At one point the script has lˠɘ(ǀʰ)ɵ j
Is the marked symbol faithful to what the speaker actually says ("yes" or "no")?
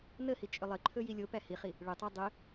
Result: no